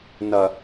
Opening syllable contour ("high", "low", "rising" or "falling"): low